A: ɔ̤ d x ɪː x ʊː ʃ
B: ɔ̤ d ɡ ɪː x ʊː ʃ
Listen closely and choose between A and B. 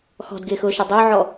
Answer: B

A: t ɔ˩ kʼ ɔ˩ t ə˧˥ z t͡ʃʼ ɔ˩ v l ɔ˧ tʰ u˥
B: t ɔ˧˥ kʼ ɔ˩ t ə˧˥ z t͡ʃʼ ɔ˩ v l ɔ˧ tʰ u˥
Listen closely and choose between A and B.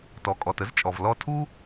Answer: A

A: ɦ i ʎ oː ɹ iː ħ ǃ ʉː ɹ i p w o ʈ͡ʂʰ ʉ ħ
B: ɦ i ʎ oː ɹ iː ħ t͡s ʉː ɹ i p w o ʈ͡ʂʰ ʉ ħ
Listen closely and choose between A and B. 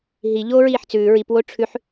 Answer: B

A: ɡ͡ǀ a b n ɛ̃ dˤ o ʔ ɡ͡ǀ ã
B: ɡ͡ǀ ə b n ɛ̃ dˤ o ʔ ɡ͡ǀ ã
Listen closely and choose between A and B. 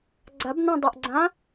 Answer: A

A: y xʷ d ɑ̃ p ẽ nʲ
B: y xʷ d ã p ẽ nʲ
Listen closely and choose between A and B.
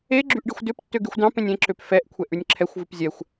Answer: A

